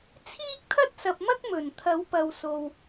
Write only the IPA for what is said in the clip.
t͡sʰ iː˥ k̚ t̪ʰ ɐ˥ t̚ s ɐ˨ p̚ m ɐ˥ k̚ m ɵ˨˩ n t̪ʰ ɐ˨˥ w p ɐ˨ w s o˨ w

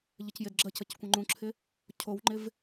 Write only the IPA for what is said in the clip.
ʎ ə c j ɪ d ɡ͡ǁ ə c ə c kʷ ə̃ ŋ͡ǃ ũ ǁʰ ɪ | cʰ o w ŋ͡ǃ ɪ v

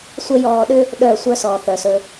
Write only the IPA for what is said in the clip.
sʷ ə˦ j ɔː˧ ɗ ʏ˦ | ɗ œː˦˨ sʷ œ˦ s ɔː˨ θ œ˨ s ɵ˧

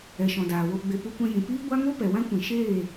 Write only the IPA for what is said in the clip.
ɛ˨ ʃ ɔ̃˨ d aː˨ w o˧ ɡ͡b e˧ p u˧ kʷ ɛ̃˧ j ĩ˨ p iː˦ ɡʷ a˦ ŋ o˦ p ɛ˨ w ã˦ kʷ ĩ˨ ʃ eː˦˨

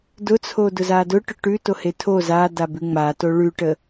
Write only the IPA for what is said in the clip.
d ʊ t͡sʰ o d ʊ z a d ʊ ʈ ʊ ʈ ʉ t o h e tʰ o z a d a b ʉ ŋ͡m a t o ɭ ʉ ʈ ə

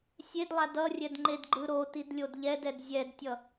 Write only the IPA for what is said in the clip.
sʲ e d lˠ a d ʌ rʲ ɛ d ŋ͡ǃ e d ɡ͡ǃ ɯ ɾ o t i d lʲ o d ʎ ɛ d ɛ d zʲ ɛ d tʲ ʌ

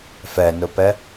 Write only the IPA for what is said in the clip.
f ɛ n ʊ p ɛ

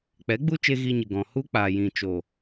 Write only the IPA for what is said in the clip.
k͡p ɛ˨˦ ɡ͡b u˦ t͡ʃ e˧ ɣ i˧ ɲ ɨ˨ ɡ ɔ̃˨ h u˦ k͡p aː˨ j ĩ˨ t͡ʃ o˨

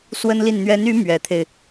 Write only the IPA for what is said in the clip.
s w ə˥ n l i˥˩ n n̪ ɥ ɛ˧˥ n y˧˥ m ɥ ɛ˧˥ t̪ʰ e˧ ɪ̯

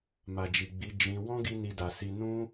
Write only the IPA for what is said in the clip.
m a˨ d͡ʒ i˨ ɡ͡b i˨˦ d͡ʒ ĩ˧ w ɔ̃˦ ɡ i˧ n i˦ d a˧ s i˦ n ũ˦

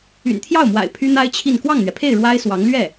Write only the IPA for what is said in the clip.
y̰˨˩ n t̪ʰ j ɑ˥˩ ʊ̯ m w a̰˨˩ ɪ̯ pʰ y˥ n̪ a˥ ɪ̯ t͡ɕʰ i˥˧ n k w ɑ˥˩ ŋ n̪ ɥ ɛ˩ pʰ e˥˩ ɪ̯ ɻ w a˥ ɪ̯ s w ɑ˧˥ ŋ l ɥ ɛ˥˩

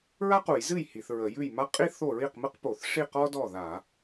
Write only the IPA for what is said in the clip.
ɹ a˥ q u˧˩˧ j z ɨ˥˩ j h i˧˩˧ θ ɹ ə˧˩˧ j ʉ˥˩ j m a˥ qʼ i˥ θ o˥˩ ɹ i˥˩ q m ɨ˥ q p o˧˩˧ θ ʂ i˥˩ q ɔ˥ d ɔ˥˩ ð a˧˩˧

